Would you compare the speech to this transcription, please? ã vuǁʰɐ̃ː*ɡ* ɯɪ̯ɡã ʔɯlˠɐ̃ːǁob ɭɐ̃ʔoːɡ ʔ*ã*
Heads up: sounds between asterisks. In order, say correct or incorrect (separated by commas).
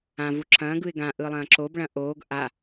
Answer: correct, incorrect